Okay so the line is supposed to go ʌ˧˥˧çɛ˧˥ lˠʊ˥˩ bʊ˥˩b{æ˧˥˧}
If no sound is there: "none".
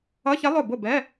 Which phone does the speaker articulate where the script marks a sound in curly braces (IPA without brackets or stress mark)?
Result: ɛ˧˥˧